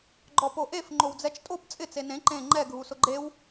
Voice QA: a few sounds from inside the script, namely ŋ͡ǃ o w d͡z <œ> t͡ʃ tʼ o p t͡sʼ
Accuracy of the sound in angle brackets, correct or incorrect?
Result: incorrect